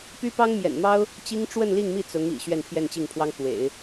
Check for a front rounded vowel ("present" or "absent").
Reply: present